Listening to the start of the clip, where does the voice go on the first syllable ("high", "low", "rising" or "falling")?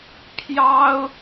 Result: high